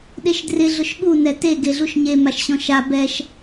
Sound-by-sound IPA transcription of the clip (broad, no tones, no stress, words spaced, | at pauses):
ɗeʃdrɪ ɮʊʃɠu nɛte ɡeɮuʃɲe maʃɕɔ̃ʃa bɛʃ